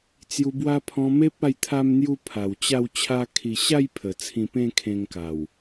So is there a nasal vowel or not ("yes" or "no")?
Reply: yes